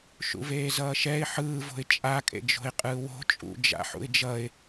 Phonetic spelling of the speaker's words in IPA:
ʃ ṵ v eː z ʌː ʃ ɛ ɪ̯ ħ ɯː v o̤ ɪ̯ t͡ʃʼ a kʼ ḛ d͡ʒ o̤ ɪ̯ qʼ ɯː w o̤ t͡ʃʼ ṵ d͡ʒ a̰ ħ ṵ ɪ̯ d͡ʒ ʌ ɪ̯

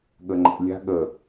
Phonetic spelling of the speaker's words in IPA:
ɠ ə ŋ͡ǃ ə̰ lʲ a̤ ɠ ə

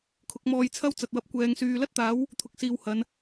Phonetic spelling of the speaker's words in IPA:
kʰ ʊ˨˥ k̚ m ɔː˧ j t͡sʰ ɐ˥ w t͡s ɐ˨ t̚ w ɐ˧ p̚ kʷ ɛː˨˧ ŋ s yː˨ l ɐ˥ t̚ t̪ aː˨˥ w | t̪ʰ ʊ˨ k̚ s iː˨ w h ɐ˨˧ n

